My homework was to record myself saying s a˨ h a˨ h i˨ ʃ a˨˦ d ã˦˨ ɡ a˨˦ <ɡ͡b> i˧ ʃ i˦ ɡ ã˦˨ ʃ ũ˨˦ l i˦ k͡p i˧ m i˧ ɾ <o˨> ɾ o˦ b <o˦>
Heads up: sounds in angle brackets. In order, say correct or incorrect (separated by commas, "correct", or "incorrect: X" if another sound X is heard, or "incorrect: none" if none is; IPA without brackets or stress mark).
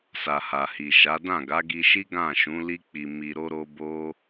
incorrect: ɡ, incorrect: o˦, correct